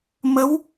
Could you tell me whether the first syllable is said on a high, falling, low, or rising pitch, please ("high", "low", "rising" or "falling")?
rising